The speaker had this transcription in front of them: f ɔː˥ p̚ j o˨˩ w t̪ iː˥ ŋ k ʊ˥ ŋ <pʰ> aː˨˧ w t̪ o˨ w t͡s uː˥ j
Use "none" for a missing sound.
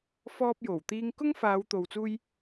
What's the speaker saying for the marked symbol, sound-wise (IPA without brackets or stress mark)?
f